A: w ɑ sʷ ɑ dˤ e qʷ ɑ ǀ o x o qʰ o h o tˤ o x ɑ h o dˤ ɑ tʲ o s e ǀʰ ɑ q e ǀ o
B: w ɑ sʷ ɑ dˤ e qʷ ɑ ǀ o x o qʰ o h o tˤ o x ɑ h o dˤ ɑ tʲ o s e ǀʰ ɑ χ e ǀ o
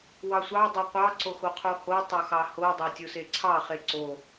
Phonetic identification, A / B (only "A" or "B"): B